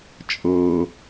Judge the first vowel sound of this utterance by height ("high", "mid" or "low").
mid